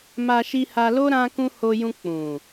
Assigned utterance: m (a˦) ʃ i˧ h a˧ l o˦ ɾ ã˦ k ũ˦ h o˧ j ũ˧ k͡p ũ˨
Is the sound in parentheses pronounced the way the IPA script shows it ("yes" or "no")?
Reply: no